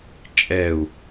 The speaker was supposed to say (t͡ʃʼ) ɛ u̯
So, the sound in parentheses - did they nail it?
yes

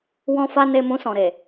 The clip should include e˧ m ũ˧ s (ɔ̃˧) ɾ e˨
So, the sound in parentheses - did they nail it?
no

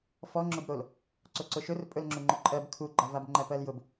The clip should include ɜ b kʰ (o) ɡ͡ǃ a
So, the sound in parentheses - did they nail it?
no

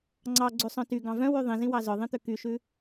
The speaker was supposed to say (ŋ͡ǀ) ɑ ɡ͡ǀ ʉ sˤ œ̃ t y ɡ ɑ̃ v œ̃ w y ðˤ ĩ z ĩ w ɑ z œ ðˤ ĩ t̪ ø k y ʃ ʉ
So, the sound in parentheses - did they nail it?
yes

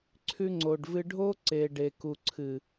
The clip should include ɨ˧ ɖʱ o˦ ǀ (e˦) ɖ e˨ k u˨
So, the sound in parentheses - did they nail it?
no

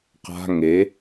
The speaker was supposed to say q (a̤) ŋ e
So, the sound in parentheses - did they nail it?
yes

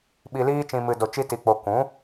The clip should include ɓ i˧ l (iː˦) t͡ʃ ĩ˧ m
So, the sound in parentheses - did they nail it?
yes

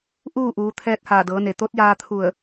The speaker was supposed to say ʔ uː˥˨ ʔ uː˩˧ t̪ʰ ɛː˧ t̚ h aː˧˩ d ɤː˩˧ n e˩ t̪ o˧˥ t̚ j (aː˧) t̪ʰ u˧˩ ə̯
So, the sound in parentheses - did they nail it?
yes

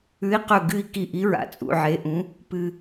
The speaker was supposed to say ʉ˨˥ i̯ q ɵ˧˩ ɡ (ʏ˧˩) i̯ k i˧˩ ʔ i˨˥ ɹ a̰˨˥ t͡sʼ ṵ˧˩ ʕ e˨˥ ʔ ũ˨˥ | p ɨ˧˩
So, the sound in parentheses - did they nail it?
no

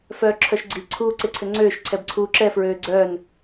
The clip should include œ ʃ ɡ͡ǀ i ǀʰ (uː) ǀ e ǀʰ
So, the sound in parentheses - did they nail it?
yes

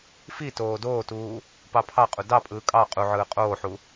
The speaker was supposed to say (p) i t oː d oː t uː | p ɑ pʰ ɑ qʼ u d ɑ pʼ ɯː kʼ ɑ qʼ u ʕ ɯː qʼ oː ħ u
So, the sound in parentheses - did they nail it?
no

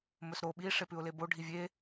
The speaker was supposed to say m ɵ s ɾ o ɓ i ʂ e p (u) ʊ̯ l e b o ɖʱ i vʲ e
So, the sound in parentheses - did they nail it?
no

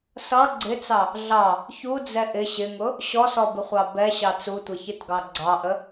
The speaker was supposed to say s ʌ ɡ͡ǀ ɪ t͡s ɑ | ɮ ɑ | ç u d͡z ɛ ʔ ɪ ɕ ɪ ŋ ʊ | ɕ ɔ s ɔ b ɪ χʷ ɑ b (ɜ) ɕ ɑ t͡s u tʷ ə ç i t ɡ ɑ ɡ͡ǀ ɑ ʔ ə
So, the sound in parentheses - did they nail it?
no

